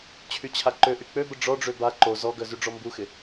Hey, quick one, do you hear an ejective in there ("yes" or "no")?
no